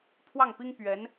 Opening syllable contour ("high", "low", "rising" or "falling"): falling